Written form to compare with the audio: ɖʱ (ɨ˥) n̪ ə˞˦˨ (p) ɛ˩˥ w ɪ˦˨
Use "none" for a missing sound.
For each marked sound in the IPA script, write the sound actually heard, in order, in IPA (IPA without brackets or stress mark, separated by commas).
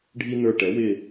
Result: i˥, ʈ